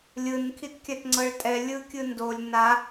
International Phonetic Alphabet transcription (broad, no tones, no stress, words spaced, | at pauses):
lʲɯn kʰitkʲatŋ͡ǀɤɭtʼɛ lʲɯkʲɯndolʲ na